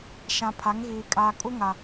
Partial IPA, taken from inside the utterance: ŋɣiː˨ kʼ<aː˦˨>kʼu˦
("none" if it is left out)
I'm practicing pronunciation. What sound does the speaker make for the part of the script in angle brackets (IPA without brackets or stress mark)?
aː˨